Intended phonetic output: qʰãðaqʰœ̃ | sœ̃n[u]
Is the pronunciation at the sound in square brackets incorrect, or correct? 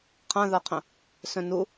correct